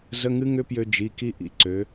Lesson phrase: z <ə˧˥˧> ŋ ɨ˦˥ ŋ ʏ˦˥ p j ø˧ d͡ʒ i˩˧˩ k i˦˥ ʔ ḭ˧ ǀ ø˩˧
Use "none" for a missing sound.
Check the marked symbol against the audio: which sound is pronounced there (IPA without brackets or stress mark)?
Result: ə˧˥˧